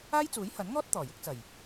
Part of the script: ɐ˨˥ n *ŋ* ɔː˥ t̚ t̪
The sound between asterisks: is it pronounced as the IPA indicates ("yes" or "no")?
yes